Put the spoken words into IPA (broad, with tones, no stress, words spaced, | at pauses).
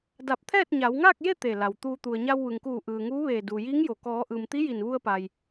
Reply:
da˧˩p̚t̪ʰɛː˥˨t̚ ɲa˩˧wŋaː˥˨k̚je˥˨ t̪e˧˩la˩wt̪uː˧ t̪u˩ə̯ɲa˧wʋɯː˩ŋkuː˧˩ ʔɯː˩ŋuː˧˥ʋeː˧˩ duː˩jiː˧˥ŋjo˩ kɔː˩˧ʔɯː˩m t̪i˧˥ji˧˩nʋu˧ə̯pa˩j